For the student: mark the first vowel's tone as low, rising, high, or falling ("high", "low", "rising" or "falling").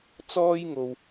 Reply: high